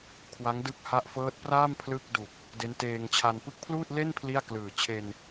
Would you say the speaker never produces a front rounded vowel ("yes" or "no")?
yes